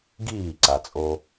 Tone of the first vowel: falling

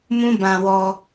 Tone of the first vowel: high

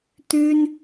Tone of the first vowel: high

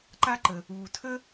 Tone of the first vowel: high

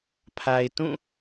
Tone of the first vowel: low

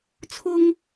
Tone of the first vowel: high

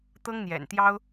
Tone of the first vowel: high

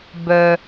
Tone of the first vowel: low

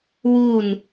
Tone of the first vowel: falling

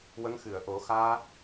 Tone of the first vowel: rising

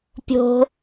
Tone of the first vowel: low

